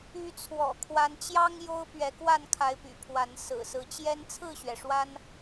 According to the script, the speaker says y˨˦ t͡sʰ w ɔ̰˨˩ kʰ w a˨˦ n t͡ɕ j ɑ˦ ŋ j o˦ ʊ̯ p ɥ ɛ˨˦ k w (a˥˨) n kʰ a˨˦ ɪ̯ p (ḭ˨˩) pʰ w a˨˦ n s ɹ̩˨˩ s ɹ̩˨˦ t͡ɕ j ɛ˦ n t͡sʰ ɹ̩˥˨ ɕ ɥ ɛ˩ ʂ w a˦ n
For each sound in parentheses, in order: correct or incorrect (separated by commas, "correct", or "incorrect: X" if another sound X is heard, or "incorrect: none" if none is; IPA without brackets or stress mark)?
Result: correct, incorrect: y̰˨˩